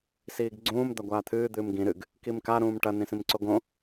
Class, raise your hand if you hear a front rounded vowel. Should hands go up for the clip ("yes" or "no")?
no